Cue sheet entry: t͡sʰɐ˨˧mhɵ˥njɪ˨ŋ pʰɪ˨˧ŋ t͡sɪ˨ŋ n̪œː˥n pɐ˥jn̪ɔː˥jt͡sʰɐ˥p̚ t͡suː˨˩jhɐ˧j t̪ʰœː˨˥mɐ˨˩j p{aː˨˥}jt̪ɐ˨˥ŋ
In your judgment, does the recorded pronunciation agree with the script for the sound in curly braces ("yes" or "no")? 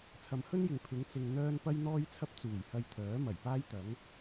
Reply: no